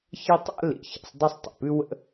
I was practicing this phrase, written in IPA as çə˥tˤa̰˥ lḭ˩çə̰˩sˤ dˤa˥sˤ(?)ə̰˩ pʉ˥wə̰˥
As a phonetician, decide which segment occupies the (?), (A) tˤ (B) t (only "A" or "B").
A